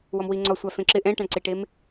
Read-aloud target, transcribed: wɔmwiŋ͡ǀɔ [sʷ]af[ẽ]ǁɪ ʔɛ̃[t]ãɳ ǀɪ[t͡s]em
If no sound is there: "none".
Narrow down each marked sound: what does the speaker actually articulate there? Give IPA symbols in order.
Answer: sʷ, ẽ, ʈ, ʈ

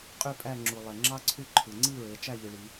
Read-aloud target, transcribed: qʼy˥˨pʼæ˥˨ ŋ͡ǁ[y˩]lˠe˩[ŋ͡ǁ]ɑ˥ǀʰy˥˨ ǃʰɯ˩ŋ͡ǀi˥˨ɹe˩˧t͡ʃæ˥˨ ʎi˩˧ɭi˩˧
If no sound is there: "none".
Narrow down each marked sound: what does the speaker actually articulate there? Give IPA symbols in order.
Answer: u˩, ŋ͡ǁ

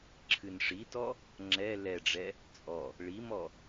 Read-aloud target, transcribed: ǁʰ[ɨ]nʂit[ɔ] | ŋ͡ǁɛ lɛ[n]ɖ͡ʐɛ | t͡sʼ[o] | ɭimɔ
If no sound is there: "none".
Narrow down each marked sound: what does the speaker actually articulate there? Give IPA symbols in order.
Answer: ɨ, ɔ, none, ɔ

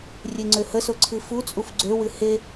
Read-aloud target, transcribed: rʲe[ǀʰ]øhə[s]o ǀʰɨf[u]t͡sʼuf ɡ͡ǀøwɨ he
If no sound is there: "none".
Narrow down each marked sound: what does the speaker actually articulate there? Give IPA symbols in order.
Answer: ŋ͡ǀ, s, u

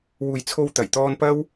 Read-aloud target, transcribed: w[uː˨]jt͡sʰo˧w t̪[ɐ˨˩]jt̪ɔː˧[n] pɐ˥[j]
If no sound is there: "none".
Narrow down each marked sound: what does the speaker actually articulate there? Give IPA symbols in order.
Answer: uː˨, ɐ˨˩, n, w

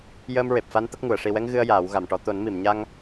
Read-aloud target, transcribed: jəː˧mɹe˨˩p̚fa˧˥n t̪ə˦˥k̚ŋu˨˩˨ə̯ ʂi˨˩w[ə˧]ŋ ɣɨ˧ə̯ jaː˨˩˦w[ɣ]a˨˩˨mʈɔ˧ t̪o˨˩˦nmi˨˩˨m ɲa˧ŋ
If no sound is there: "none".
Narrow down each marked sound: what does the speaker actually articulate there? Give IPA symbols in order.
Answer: ɛ˧, ɣ

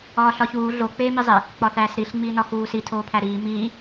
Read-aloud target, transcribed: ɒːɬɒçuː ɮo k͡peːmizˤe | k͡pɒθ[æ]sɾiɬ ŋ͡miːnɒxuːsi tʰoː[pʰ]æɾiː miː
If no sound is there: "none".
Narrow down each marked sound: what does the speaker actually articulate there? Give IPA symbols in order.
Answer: æː, pʰ

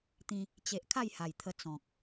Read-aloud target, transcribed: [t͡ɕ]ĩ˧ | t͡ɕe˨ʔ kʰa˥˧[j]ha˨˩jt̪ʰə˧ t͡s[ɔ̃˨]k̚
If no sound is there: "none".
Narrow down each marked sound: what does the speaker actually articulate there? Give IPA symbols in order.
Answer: t̪, j, ɔ̃˨

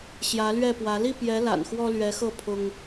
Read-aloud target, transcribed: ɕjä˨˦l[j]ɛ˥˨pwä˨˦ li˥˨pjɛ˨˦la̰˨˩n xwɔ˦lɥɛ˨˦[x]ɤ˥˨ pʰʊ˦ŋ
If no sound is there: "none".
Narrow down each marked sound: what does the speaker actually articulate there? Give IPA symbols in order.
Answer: ɥ, x

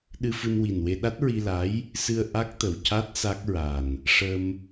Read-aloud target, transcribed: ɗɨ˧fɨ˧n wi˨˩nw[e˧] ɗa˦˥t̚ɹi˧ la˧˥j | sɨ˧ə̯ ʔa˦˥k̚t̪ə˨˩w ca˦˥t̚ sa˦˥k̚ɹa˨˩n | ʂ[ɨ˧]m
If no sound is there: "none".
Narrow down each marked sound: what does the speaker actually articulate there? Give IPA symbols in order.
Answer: e˧, ə˧

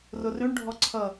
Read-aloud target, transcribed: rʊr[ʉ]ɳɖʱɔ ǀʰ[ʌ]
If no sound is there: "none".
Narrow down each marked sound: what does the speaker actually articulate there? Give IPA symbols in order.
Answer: ʉ, ʌ

